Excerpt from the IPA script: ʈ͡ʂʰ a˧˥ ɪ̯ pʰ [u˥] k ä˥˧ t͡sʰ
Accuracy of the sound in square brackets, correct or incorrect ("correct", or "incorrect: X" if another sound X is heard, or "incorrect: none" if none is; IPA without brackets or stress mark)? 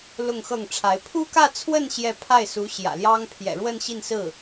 correct